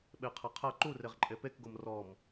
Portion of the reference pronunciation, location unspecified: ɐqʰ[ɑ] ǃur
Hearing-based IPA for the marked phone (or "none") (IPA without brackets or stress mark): ɐ